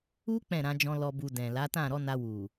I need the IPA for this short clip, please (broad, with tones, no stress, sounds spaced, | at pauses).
u˦ k͡p ɛ̃˦˨ ɾ ã˧ d͡ʒ ɔ̃˧ l ɔ˨ b u˨ d ɛ̃˨ l a˨˦ t ã˦˨ ɾ ɔ˨˦ n a˧ w u˨